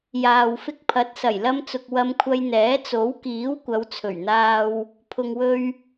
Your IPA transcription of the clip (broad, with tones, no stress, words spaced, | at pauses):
jaː˨wfɪ˧k̚pʰɐ˨˥t̚ sɐ˨˩jlɐ˧mt͡sʊ˨k̚ wɐ˧mkʷʰɐ˧jn̪ɛː˨˥ t͡so˨˥wkiː˨˥w kʷɐ˨˧wt͡sʰɵ˨˩ɥn̪aː˧w | pʰʊ˨ŋwɵ˧ɥ